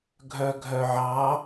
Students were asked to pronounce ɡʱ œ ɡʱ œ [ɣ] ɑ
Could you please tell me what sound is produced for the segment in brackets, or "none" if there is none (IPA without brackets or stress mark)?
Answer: ʕ